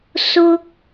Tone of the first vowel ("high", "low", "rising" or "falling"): high